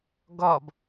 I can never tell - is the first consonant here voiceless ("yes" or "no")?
no